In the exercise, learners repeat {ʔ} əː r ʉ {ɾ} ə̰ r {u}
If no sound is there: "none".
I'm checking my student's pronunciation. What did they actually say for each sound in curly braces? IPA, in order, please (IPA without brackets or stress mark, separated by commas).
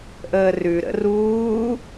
ʔ, ɾ, uː